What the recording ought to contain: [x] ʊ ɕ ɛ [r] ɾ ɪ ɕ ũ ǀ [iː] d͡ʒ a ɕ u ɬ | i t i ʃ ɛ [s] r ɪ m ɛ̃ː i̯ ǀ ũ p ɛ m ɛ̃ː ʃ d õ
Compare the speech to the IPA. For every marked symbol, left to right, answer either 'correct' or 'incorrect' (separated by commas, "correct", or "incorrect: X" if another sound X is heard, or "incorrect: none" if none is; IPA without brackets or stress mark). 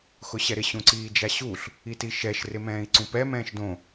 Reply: correct, incorrect: none, correct, incorrect: ʃ